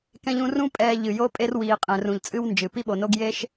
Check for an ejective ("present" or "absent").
present